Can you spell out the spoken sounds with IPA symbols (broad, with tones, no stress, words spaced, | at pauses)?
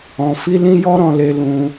ɔ̃˧fi˦ lĩ˦jɔ˦ɾɔ̃˧le˧ lũ˦